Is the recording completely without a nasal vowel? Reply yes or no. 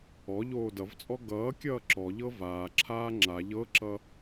yes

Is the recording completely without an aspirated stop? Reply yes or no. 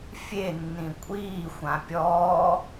yes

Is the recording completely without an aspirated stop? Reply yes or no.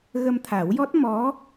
no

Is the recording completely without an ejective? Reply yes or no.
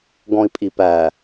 no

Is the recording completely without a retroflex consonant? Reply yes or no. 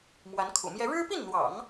no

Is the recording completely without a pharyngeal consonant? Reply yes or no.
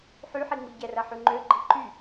no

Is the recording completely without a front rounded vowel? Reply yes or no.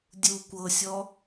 yes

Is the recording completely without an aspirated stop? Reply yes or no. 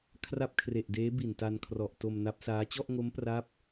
no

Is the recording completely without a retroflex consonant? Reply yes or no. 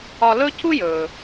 yes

